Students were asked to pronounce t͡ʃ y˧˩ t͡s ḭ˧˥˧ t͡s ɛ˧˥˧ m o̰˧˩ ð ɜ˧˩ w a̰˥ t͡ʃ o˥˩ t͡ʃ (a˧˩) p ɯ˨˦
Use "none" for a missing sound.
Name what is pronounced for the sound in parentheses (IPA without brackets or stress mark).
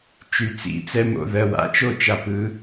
a˧˩